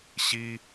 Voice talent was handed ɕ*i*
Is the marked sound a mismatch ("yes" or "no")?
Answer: no